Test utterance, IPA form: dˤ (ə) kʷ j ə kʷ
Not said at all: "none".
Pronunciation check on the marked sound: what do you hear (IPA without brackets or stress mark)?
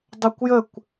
ə